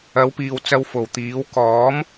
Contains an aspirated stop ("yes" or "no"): no